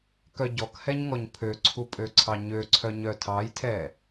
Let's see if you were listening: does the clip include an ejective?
yes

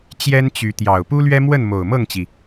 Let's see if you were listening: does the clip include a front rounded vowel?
yes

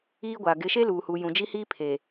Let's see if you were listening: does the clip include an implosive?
no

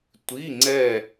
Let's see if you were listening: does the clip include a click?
yes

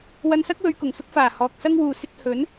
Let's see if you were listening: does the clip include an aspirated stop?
no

